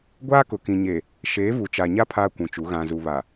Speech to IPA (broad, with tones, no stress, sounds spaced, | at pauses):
ɡʷ aː˦ k ʊ˨ k ĩ˨ ɲ e˨ | ʃ eː˨˦ v u˨ t͡ʃ a˨ ɲ a˦ pʰ aː˦ kʷ ũ˨ t͡ʃ u˨˦ ɣ ã˨ z u˨ β a˨